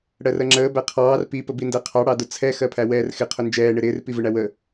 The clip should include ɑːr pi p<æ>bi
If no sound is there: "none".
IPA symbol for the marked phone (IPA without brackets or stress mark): ə